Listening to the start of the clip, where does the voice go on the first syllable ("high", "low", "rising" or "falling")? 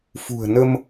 low